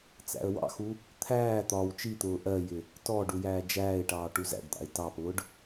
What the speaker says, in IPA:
t͡s æ̰ ə̯ w ɑ̰ x u | t̪ʰ æː t̪ ɒː w t͡ʃ i t̪ ʊː ʔ ɜ j ɪ | t ɔ ɖ u j æː d͡ʒ æː ɪ̯ ʈ ɑː ʈ u z æ̰ ɖ d̪ ɑ̰ ɪ̯ t ɑ p ʊː ɖ

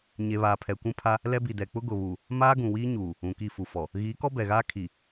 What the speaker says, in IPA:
ɲ e˨ β aː˨ pʰ ɛ˨ kʷ ũ˦ pʰ a˦ | l ɛ˦ b i˨ d ɛ˨ k͡p ʊ˦ ɡ ʊ˨ β u˨ | m aː˦ ɡ ũ˨ w iː˦ ɲ uː˨ | ũ˨ k i˦˨ f u˨ f ɔ˨ | ɣ iː˨˦ k ɔ˦ b ɛ˨ ɣ aː˦ kʰ i˨

